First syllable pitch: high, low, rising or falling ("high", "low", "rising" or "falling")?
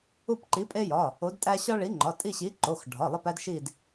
falling